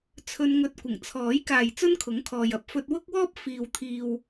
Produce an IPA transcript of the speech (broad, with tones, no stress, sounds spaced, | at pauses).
t͡sʰ ɵ˧ n ŋ ɵ˧ t̚ kʷ ɪ˨˩ ŋ t͡sʰ ɔː˨˥ j k aː˨ j t͡s ɵ˥ n kʰ ʊ˨˥ ŋ kʰ ɔː˨ j ɐ˨˥ p̚ f ɵ˧ t̚ w ʊ˥ k̚ w ɔː˥ p̚ f iː˨ w t̪ʰ iː˨ w